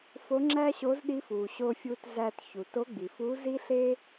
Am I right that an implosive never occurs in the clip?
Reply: no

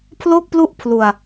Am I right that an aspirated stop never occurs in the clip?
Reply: no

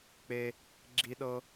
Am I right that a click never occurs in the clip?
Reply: no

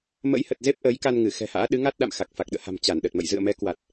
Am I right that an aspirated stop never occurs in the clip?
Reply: yes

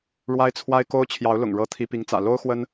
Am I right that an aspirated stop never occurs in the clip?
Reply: no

